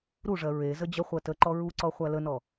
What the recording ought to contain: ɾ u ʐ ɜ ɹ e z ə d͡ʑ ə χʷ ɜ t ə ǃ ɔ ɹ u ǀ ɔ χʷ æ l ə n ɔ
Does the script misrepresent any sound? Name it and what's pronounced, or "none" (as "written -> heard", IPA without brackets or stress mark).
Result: none